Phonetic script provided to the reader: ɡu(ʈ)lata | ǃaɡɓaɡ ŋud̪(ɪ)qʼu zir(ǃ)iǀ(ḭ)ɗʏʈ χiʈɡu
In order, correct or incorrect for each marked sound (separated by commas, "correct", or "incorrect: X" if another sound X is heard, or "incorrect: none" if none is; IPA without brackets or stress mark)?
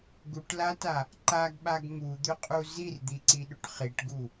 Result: correct, incorrect: ʏ, incorrect: d̪, incorrect: i